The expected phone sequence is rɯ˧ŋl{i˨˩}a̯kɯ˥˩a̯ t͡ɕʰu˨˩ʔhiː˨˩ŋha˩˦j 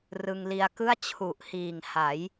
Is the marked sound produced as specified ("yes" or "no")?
no